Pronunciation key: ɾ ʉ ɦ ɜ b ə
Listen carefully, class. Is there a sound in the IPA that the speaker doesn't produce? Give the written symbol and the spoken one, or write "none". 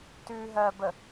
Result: ɾ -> t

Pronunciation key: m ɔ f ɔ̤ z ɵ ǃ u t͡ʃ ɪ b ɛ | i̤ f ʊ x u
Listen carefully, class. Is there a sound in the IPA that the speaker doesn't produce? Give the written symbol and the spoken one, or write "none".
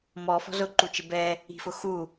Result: ɵ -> ʊ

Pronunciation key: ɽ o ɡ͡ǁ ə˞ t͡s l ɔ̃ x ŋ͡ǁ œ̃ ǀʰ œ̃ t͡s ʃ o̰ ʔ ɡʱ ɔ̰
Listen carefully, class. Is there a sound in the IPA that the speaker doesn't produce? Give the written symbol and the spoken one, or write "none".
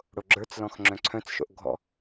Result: none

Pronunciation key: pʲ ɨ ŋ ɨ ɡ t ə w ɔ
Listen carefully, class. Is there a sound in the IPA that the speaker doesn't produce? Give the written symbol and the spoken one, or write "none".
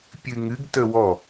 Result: none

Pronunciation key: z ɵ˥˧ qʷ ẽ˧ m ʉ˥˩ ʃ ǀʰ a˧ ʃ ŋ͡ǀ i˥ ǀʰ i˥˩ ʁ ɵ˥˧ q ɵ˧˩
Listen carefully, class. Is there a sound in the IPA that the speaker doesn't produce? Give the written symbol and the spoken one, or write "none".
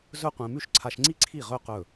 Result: none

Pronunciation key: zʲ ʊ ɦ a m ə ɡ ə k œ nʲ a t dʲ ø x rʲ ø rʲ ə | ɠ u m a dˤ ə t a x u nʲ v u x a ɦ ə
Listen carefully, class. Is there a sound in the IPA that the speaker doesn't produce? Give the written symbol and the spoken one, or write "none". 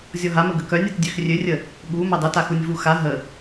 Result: ʊ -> ɔ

